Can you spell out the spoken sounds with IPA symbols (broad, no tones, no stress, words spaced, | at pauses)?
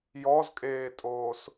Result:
jɔzkʼeːtʼoːs